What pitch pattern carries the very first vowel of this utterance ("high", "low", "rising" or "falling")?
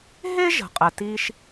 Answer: high